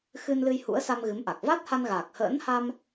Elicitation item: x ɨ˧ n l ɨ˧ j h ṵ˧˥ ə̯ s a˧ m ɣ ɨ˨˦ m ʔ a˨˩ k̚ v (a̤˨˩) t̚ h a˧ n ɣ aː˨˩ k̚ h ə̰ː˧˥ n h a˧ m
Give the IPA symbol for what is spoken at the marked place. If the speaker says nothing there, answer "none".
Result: a˦˥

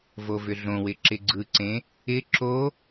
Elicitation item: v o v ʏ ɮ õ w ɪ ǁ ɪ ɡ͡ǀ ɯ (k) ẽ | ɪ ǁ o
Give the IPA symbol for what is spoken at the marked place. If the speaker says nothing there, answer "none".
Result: ǀ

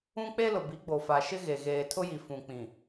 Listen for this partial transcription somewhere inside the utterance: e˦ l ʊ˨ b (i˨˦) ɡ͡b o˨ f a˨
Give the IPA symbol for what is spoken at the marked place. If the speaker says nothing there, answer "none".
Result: i˨˦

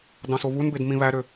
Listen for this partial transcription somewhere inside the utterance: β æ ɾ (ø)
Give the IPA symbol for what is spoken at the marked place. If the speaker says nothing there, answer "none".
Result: ø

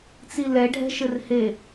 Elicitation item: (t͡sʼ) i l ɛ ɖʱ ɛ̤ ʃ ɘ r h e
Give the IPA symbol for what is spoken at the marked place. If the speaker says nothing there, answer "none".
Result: t͡s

